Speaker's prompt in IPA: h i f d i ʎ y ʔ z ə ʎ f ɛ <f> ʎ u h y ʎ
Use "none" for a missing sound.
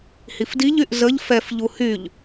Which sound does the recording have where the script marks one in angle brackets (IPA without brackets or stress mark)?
f